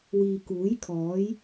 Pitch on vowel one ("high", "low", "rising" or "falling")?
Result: low